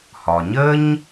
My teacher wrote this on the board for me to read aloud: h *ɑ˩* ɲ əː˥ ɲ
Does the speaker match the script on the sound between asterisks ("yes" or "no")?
no